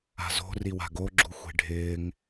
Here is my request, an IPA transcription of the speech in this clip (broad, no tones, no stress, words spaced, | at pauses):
a̤zo̤riwa̤ ɡoɡ͡ǁuxʷe̤ ɖʱɪːŋ